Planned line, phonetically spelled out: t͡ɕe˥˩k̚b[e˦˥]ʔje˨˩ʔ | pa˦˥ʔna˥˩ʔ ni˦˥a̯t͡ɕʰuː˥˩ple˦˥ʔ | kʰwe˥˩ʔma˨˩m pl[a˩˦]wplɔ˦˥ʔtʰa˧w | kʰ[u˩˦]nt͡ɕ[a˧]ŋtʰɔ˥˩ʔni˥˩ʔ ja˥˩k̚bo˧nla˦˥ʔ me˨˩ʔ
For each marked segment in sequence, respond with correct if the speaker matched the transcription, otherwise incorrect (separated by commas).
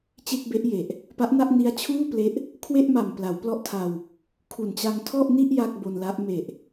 correct, correct, incorrect, correct